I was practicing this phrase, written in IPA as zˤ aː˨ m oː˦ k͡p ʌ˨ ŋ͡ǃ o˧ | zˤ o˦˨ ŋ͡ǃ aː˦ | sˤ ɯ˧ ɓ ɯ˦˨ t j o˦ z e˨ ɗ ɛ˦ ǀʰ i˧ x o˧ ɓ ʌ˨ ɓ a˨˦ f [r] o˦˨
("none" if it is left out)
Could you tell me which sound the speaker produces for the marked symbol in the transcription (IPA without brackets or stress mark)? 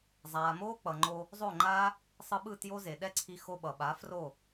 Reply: r